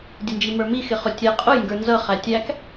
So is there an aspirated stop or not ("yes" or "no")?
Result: no